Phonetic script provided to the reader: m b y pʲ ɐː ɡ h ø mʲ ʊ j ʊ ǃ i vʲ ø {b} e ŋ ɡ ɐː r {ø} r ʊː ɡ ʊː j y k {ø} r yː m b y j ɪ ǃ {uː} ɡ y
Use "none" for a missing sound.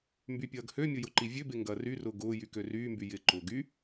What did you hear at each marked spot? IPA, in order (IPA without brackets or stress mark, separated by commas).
b, y, ø, ʊː